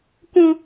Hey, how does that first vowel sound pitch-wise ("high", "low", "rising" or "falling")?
high